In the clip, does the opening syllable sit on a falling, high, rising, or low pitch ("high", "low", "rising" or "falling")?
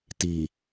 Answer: low